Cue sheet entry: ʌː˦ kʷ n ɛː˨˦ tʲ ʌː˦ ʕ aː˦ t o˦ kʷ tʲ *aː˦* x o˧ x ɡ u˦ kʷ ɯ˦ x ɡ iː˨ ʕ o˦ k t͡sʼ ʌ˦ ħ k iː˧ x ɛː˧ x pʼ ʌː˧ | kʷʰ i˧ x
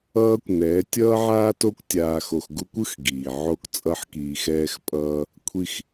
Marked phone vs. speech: incorrect: aː˧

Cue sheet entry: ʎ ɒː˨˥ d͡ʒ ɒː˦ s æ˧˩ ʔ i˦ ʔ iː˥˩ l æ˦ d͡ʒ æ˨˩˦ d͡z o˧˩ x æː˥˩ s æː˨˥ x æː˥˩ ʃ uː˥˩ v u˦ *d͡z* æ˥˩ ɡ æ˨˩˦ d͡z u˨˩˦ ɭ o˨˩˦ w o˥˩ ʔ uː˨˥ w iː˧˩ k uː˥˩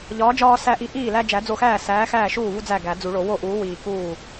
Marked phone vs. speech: correct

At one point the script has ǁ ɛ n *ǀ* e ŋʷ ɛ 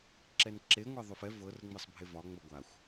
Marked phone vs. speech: incorrect: ǁ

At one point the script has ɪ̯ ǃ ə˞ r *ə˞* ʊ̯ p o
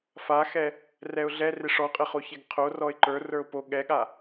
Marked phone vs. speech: correct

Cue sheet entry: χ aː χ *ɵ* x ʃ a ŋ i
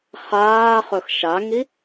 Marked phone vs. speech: correct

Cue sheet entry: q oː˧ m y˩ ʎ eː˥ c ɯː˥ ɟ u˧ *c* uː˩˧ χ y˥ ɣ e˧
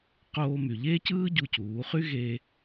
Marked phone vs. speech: correct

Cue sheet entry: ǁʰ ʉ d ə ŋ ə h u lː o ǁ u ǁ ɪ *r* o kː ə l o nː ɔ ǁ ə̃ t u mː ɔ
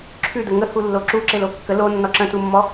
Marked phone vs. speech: incorrect: l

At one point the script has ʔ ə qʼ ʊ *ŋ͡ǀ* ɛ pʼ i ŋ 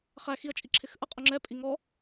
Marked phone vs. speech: incorrect: ŋ͡ǁ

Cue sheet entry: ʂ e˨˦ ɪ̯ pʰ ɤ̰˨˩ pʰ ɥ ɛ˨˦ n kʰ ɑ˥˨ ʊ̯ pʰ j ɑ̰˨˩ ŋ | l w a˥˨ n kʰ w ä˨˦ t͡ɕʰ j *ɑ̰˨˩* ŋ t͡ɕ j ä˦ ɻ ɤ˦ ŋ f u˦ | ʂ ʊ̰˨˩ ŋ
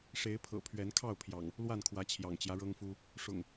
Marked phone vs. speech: correct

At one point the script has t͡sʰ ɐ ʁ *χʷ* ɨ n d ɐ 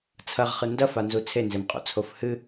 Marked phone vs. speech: incorrect: χ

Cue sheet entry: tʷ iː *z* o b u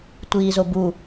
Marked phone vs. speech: correct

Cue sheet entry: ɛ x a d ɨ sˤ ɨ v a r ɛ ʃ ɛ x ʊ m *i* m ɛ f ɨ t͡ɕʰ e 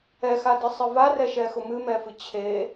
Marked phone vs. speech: incorrect: ɨ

